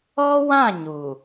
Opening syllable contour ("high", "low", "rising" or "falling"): high